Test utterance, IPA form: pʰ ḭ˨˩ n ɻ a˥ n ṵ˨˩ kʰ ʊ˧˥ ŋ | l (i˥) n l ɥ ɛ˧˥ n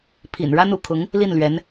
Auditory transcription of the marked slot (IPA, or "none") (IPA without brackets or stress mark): i˥˩